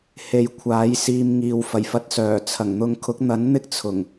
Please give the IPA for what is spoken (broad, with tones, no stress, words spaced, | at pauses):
he˨˧j kʷʰaː˨˥jsiː˧mŋiː˨w fɐ˨˩jfɐ˧t̚sœː˨˩ t͡sʰɐ˨˩ŋ n̪ʊ˨ŋkʰʊ˨˥k̚n̪ɐ˨˥n n̪ɪ˥k̚t͡sʰʊ˨˩ŋ